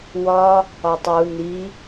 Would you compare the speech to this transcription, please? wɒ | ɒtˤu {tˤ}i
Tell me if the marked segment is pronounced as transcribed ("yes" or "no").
no